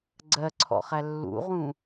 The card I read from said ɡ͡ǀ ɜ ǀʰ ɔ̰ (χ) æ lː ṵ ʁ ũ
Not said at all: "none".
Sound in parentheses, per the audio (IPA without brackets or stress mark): χ